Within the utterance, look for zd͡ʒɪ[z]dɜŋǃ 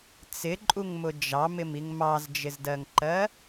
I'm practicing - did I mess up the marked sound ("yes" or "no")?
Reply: no